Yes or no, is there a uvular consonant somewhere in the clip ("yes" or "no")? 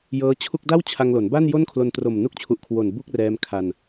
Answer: no